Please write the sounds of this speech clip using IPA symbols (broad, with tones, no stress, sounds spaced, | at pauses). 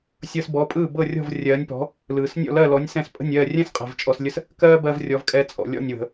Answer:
sʲ ɤ˧ s b ɔ˩˥ pʼ ɯː˥˩ b ɤ˥˩ rʲ ɔ̤˥˩ v rʲ ɜː˩˥ nʲ p ɔ̤˩˥ | l ɯː˩ s nʲ ɔ̰˥˩ l ɜ˥˩ l ɔ˩˥ nʲ s ɛ̃˧ s pʼ ə̤˥˩ nʲ ɜː˥˩ rʲ ɛ̃˥ s qʼ ɛ̤˩ v t͡ʃʼ ɔ˧ s lʲ ə˥ s | k ɜː˥ b ɜ˧ v rʲ ɔ˩˥ v kʼ ɛ˧ t͡sʼ ɔ̰˩ lʲ ɔ̰˥˩ nʲ w ə̤˩